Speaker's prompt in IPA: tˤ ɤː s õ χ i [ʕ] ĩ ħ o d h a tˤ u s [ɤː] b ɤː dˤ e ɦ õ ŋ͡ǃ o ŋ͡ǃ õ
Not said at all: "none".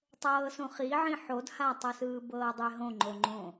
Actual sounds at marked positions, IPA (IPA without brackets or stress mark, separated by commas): ʕ, ɯː